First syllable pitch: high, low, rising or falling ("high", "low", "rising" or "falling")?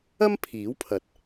high